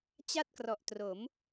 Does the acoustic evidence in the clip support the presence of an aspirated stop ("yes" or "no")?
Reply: no